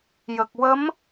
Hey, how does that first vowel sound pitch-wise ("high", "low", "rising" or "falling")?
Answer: low